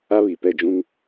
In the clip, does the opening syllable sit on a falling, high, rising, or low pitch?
high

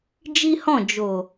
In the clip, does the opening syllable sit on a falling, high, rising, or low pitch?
high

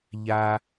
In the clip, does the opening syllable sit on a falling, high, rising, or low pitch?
low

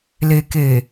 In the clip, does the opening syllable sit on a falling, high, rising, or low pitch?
low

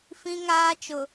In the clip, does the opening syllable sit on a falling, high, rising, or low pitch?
high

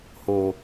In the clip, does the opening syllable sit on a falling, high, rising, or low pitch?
low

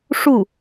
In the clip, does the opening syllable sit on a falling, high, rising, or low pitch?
falling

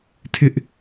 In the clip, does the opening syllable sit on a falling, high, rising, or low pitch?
high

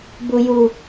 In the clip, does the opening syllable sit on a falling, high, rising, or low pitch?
high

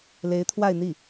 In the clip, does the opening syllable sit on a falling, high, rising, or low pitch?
rising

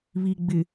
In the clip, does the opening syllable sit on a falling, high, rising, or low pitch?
low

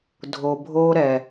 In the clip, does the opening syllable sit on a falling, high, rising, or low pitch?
low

